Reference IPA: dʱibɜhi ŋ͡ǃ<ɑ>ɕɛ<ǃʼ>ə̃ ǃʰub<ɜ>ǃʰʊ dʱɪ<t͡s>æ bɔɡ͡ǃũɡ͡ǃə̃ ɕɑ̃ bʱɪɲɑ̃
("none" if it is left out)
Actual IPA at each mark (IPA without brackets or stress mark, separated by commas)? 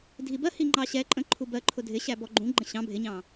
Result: ɑ, ǃʼ, ɜ, ɕ